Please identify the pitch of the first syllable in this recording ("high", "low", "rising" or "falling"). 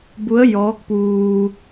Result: rising